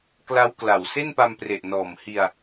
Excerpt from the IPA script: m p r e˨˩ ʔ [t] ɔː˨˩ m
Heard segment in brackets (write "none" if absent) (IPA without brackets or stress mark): n